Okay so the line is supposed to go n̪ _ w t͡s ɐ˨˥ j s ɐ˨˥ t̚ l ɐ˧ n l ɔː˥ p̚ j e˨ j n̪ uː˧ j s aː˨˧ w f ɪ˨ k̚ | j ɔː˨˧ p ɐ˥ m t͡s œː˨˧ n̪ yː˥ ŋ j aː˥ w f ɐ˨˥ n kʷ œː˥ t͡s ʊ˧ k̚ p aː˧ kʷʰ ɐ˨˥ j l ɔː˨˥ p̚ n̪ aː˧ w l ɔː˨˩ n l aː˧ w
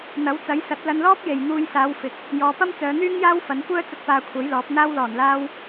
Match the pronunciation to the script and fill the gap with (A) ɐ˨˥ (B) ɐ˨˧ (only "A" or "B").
A